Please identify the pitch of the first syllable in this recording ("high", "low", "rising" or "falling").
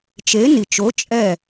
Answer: rising